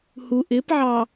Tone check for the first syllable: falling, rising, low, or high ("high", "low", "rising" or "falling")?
low